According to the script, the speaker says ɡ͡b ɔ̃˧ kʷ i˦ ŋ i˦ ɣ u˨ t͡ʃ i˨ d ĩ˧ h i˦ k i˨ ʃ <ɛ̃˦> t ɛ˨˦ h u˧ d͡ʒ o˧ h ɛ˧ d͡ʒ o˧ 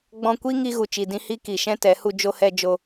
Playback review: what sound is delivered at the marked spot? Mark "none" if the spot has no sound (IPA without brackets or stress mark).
ɛ̃˦